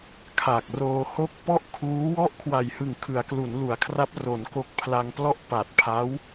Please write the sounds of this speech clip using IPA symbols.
kʰ a˨˩ k̚ r oː˧ h o˥˩ k̚ p ɔ˥˩ ʔ kʰ uː˦˥ w ɔ˥˩ ʔ kʰ w a˨˩ j h ɯ˨˩ ŋ kʰ ɯ˩˦ a̯ k l u˩˦ n l u˩˦ a̯ kʰ r a˦˥ p̚ r o˩˦ n k o˦˥ k̚ pʰ l a˧ ŋ p l ɔ˥˩ ʔ p a˨˩ t̚ pʰ a˦˥ w

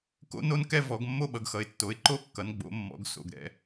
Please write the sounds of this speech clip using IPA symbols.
k o̰˦ n o˦ n k ɛ˦ v ɔ˩˧ ɡ mː o˦ ɓ ʌ˩˧ ɡ x ʌ˩˧ ɪ̯ tː o˩˧ ɪ̯ ǃ o˦ kː ʌ˩˧ n ɡ͡b o̰˩˧ mː ɔ̰˩˧ ɡ s o̰˩˧ ɡ ɾ ɛ̰˦

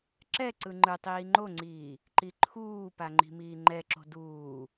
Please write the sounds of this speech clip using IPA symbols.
ǁ ɛ ǀ ɯ ŋ͡ǃ ɯ tˤ iː ŋ͡ǃ o ŋ͡ǀ iː | ǃ i ǃʰ uː p a ŋ͡ǃ i̤ m iː ŋ͡ǃ ɛ ǁ o̤ d uː

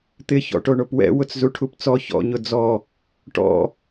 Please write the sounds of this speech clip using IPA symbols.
t̪ ɪ ç ɔ̰ ʈ o ɳ o p w ɛ̰ w ʊ t͡s z u ʈʰ u p t͡s ɔ ç ɔ̰ ɲ ʊ d͡z ɔ | ʈ ɔ̰

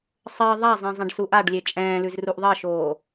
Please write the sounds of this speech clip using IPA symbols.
sˤ ɜ ðˤ a zˤ ɛ̃ zˤ ɛ̃ ɖ s u ʔ a ɖ lʲ e t͡ʃʼ ɛ̃ː l ʉ z r u ʔ ðˤ ɜ ʃ oː

